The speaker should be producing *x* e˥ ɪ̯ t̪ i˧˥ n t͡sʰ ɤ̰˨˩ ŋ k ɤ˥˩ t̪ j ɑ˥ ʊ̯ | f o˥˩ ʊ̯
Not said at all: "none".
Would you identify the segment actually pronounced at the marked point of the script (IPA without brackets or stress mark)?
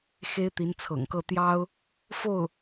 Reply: x